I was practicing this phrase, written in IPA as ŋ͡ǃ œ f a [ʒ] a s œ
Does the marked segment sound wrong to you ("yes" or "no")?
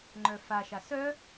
yes